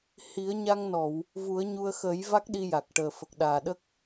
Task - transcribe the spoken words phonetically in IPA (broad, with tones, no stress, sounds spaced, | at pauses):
h i˨˩˦ ə̯ ɲ a˧ ŋ n ɔ˨˩˨ w | v u˨˩˦ ə̯ ɲ u˧ ə̯ x ə˨˩˦ j v a˦˥ k̚ ɗ i˧ j a˨˩ k̚ ʈ əː˨˩ f ə˨˩ k̚ ɗ aː˨˩ ɗ ə˦˥ k̚